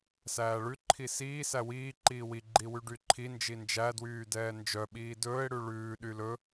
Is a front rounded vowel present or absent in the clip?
present